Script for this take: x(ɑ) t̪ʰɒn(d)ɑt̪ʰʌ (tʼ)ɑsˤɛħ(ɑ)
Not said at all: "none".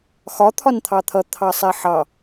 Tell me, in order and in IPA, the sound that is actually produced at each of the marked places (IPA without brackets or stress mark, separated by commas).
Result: ɒ, t̪ʰ, t̪ʰ, ɑ